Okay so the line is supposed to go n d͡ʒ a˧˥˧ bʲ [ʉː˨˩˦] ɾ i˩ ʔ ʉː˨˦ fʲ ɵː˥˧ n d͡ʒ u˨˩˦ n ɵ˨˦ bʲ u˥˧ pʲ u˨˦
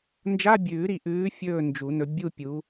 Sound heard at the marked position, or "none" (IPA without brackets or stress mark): ʉː˨˩˦